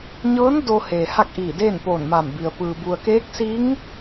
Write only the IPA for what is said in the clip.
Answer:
ɲɤː˧˥n do˧ heː˩ha˥˨k̚ʔiː˧˩ deː˥˨npoː˧˩nma˧˩mbi˩ə̯ pɯː˩ bu˩ə̯keː˧˥k̚siː˧˥ŋ

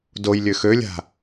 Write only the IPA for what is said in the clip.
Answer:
doj lʲøxølʲa̤

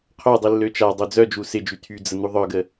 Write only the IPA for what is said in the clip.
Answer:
qʰœdˤi lːøt͡ʃadˤø d͡zœd͡ʒu sɪd͡ʒy tʰy d͡zən̪uðˤœɡə

